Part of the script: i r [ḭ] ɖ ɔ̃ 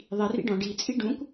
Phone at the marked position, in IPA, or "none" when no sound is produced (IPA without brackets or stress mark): ḭ